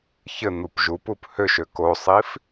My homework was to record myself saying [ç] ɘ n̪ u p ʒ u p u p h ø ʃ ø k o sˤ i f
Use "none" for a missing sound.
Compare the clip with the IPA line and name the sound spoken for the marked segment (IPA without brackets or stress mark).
ç